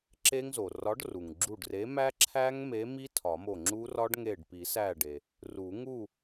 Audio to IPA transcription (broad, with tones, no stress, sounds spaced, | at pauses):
ǁ e˦˥ ŋ z o˩ r ɒ˨˥ ɖ r u˩ ŋ ɡ͡ǁ u˧˩ ɖ r e˨˥ m æ˦˥ ǁʰ æ˦˥ ŋ m e˨˥ m i˦˥ tʰ ɒ˨˩˦ m o˧˩ ŋ͡ǁ u˦˥ r ɒ˦˥ ɖ ŋ e˧˩ ɖ p i˨˩˦ s æ˧˩ ɖ e˩ | r u˨˩˦ ŋ u˥˨